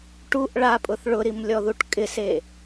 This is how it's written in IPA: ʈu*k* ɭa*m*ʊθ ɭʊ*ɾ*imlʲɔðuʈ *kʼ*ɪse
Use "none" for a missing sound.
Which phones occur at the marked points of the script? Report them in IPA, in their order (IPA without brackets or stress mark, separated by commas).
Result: ʔ, pʼ, ɾ, kʼ